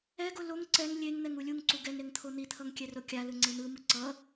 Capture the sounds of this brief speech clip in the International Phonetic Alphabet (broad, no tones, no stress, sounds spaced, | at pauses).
ɛ ɡ o l o ŋ ǀ ɛ ŋ lʲ e ŋ n̪ ɛ ŋ u lʲ u ŋ ǀ u ɡ ɛ ŋ ɾ e ŋ t̪ʰ o n̪ i t̪ʰ ʌ ŋ kʲ ɛ r o kʲ a l ɯ ŋ͡ǀ e n̪ ɯ m ɯ ǀ ʌ